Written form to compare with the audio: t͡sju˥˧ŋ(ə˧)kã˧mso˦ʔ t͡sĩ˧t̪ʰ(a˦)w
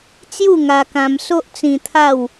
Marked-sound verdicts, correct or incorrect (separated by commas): incorrect, incorrect